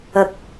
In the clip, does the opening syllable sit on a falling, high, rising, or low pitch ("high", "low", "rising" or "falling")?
low